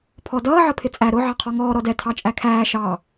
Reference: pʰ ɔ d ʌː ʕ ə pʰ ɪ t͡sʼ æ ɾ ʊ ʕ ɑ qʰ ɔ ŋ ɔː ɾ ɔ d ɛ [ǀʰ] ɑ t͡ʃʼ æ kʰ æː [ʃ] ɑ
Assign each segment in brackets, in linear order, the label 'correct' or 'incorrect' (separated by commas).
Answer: incorrect, correct